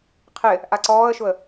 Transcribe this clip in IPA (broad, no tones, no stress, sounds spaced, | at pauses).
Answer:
qʰ ɪ | ʔ a ǀ ɔː ə̯ ʃ ʊ ə̯